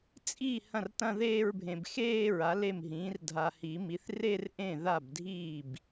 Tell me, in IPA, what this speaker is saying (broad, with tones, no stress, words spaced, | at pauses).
t͡sʼi˥˩ hɐ̃˥˩rtɐ̃˥˧ðeː˥˧ɹbʱẽ˨b xeː˥˧ ɹa˩˥le˥˩mɦĩː˩˥r dʱa˨hi˨˩˦mi˩˥θ re˥˧rʔẽ˥˩ ða˥˩bdʱiː˥˩b